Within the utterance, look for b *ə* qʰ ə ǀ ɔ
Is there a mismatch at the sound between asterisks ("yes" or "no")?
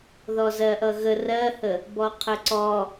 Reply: yes